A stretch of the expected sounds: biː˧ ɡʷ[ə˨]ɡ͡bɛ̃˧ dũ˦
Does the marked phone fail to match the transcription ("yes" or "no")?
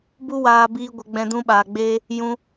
yes